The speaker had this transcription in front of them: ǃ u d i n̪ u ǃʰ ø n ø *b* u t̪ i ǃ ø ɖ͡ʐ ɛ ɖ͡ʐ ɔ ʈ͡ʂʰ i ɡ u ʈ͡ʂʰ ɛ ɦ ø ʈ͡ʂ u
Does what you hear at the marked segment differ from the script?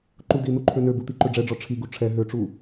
no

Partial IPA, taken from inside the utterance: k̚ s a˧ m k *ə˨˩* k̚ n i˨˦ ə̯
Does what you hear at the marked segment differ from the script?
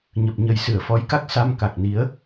yes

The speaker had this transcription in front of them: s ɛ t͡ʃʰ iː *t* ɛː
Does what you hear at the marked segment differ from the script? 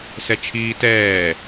no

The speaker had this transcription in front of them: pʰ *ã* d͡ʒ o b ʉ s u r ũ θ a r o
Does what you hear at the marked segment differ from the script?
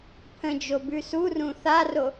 yes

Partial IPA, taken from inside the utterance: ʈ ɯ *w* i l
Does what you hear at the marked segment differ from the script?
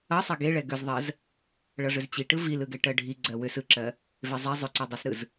yes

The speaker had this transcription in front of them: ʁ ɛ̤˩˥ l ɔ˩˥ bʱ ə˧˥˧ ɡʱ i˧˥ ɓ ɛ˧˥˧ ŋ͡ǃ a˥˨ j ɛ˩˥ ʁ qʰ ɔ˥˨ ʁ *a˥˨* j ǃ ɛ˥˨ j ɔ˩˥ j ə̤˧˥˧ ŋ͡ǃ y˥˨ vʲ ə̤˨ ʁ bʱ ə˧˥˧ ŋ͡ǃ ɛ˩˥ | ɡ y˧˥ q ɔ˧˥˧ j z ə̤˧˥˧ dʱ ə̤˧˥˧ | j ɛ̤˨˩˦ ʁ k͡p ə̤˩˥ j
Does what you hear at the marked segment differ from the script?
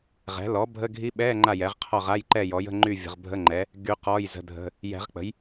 yes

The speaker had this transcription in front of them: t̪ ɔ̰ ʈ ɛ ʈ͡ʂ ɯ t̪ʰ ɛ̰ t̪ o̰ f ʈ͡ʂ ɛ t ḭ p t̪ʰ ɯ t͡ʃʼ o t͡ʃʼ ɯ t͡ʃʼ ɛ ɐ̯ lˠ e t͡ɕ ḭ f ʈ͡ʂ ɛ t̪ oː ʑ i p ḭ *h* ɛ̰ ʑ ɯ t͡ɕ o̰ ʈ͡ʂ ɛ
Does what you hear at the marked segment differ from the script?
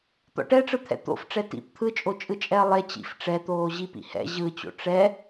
no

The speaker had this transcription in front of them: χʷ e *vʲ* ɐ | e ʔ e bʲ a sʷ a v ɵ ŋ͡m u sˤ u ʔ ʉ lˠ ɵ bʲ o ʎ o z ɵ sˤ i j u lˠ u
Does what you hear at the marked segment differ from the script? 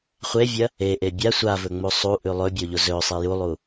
no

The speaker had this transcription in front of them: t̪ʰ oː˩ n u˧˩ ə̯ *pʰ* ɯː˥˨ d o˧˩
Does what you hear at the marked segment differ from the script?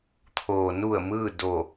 yes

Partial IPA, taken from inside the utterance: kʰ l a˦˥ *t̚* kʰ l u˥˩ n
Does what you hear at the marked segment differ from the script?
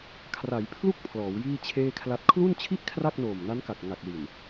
no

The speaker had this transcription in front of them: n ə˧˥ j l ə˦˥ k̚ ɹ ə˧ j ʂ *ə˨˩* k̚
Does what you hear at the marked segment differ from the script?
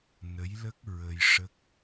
yes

